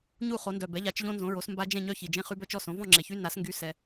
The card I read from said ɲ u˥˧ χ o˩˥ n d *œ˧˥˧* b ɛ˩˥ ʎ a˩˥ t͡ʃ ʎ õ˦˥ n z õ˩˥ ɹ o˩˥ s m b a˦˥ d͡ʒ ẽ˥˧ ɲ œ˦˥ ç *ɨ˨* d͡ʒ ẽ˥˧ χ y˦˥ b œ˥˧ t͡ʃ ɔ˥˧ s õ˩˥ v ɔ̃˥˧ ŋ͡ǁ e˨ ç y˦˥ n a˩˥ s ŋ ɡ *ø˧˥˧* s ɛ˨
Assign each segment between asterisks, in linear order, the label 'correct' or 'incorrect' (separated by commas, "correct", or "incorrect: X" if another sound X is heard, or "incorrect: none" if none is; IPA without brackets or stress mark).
incorrect: œ˨, incorrect: i˨, incorrect: y˧˥˧